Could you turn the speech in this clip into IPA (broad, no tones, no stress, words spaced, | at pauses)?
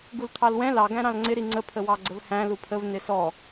ɡult̪ʰɑlwɛ̃ lɑ ɡæ̃ɾɑ̃lŋ͡ǀɪ ɾiŋ͡ǀə pʰəwɑɡ͡ǀəvhæ̃ lupʰəv nɪsɔ